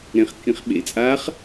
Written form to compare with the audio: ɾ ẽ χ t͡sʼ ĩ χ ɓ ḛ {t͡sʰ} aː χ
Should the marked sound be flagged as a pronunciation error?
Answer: yes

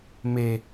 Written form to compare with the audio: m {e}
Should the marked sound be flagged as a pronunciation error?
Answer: no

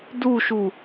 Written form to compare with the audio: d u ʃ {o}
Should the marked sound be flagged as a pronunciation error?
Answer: yes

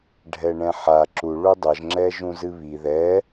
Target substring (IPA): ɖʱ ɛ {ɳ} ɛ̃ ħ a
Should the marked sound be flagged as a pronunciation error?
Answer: no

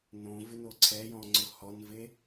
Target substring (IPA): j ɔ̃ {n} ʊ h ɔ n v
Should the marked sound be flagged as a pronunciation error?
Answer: yes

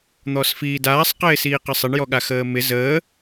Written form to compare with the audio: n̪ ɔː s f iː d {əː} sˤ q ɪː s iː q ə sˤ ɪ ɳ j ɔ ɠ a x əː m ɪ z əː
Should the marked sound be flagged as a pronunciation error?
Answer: yes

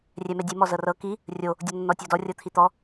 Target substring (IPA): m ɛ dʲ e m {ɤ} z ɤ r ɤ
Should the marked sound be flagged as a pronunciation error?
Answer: yes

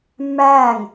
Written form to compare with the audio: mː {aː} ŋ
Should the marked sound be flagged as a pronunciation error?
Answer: no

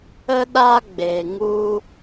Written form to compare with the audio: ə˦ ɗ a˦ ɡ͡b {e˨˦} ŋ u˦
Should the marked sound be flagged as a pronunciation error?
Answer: yes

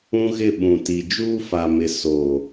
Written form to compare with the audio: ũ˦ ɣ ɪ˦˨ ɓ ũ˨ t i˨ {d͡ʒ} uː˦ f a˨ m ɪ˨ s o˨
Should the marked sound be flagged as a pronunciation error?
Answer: no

